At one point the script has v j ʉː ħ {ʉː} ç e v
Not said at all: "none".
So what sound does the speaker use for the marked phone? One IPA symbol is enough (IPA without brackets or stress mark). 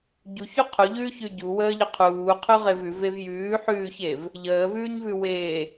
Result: ʉː